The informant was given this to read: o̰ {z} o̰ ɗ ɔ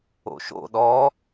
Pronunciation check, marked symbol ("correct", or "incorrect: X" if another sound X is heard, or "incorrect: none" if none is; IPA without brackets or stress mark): incorrect: ʃ